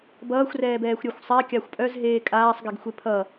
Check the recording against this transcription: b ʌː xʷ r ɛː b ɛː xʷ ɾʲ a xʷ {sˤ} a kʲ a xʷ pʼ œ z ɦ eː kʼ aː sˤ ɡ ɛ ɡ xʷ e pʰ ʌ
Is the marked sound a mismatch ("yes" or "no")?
no